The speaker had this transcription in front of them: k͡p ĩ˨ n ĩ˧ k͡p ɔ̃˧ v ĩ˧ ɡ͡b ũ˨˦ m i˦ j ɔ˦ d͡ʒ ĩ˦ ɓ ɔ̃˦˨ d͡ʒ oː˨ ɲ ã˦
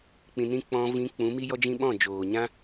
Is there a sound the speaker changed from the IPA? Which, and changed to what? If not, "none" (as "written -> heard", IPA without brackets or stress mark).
ɡ͡b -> k͡p